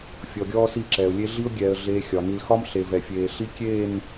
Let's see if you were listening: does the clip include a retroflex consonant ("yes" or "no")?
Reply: no